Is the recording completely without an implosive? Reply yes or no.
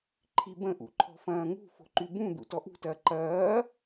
yes